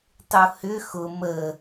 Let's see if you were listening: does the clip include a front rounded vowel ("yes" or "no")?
yes